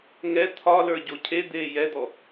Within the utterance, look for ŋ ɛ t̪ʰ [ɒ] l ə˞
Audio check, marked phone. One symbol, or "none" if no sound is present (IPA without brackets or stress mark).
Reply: ɒ